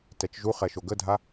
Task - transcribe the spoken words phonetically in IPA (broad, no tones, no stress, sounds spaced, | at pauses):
t ɛ t͡ʃ ʒ u χ ɛ ʃ o ɡ ə dʱ a